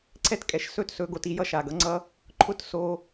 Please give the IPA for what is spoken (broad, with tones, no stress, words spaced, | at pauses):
ǀʰɛ˦tkʼɛ˨ʃsɵ˦tsɵ˨˦ ɡo˨ti˧jʌ˦ ʃa˨ɡʌ˦ŋ͡ǀʌ˦ | ǃʰʊ˦tso˧